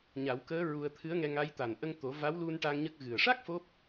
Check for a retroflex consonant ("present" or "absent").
present